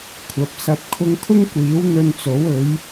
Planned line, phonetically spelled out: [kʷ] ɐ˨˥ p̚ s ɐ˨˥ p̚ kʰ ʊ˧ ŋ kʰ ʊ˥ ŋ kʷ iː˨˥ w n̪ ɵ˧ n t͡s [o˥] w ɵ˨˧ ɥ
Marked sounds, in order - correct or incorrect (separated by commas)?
incorrect, incorrect